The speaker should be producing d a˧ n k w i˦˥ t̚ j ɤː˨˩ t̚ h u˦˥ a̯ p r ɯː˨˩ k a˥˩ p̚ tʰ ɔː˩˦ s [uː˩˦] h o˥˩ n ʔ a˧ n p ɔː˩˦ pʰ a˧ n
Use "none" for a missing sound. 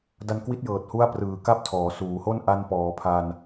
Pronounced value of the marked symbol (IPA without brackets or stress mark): uː˩˦